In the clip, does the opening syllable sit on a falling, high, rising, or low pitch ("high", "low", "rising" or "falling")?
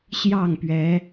falling